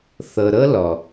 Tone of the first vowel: low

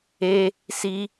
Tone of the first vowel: high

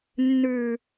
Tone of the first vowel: low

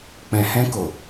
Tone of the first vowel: low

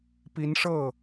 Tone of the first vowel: rising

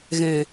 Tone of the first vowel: low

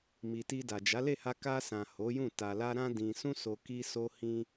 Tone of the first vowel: low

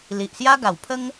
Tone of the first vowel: low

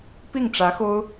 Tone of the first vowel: falling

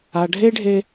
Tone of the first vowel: low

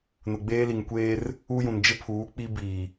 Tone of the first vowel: low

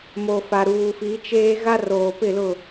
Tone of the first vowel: low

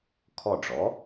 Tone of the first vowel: falling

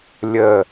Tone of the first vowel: falling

